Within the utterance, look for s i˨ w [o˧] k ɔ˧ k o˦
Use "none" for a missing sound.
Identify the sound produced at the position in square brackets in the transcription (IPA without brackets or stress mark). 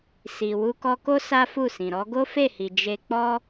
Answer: u˧